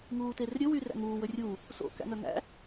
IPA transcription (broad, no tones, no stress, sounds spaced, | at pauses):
ŋ uː t e r ɾʲ ɵ w y r æ̰ ŋ uː w ɵ rʲ u | s o̰ k æ̰ ŋ œ ŋ æ̰